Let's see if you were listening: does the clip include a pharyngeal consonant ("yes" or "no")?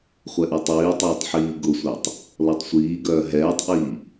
yes